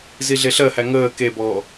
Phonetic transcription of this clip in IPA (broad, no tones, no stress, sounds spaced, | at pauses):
z i ɮ e ɬ ɜ h æ ŋ əː k e b ɔː